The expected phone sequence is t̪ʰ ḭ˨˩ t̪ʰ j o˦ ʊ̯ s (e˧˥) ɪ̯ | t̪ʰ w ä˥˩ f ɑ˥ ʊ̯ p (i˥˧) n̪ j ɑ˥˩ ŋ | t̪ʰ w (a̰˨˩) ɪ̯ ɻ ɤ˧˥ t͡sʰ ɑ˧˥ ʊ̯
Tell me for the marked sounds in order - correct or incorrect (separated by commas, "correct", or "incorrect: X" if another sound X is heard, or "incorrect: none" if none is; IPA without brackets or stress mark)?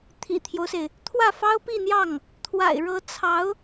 incorrect: e˩, correct, correct